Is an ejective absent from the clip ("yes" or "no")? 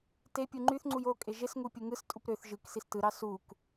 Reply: no